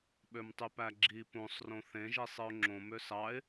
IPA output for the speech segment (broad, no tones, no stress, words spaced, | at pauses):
ɓømtˤypæɡ͡ǁi põsˤrõ θẽʒi sˤɯʊ̯ŋ͡ǁõ møsɑɪ̯